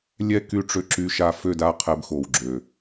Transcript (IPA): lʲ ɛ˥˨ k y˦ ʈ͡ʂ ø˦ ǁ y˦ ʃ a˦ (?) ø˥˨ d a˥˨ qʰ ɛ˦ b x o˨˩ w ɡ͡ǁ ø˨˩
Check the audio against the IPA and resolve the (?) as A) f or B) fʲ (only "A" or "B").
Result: A